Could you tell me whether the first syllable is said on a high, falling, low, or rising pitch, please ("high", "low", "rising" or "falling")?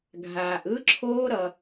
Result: low